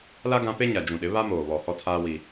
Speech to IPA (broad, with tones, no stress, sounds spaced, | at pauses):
l a˦ ɡ ã˦ p e˦ ɲ a˨ d͡ʒ ũ˨ ɗ ɪ˨˦ β a˦ m oː˨ β ɔ˨ h ɔ˦ tʰ aː˦ w i˦